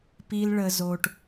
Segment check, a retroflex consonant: present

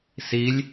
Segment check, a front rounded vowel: absent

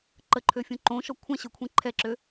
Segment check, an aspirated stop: present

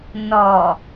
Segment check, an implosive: absent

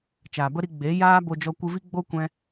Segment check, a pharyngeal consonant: absent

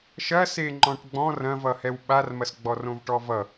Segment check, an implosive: present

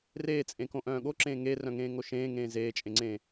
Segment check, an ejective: present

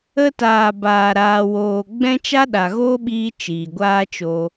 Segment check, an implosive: present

